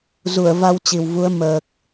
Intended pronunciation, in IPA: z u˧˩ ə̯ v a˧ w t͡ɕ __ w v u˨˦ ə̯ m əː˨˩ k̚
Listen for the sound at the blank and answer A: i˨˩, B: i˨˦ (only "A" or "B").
A